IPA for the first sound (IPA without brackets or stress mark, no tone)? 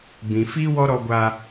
b